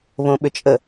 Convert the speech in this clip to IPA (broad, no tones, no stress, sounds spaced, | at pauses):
β õ ɓ ʏ t͡ʃʼ ə